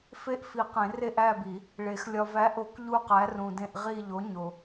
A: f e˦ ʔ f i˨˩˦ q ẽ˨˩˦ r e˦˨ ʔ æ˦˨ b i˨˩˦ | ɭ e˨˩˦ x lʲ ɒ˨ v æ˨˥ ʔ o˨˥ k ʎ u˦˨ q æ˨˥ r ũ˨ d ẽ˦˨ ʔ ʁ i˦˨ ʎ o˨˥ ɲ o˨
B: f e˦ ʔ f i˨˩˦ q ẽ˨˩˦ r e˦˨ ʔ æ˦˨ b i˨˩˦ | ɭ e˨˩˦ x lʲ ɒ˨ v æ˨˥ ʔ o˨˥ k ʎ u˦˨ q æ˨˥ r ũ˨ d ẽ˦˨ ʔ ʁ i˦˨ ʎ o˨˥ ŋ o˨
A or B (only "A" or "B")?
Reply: A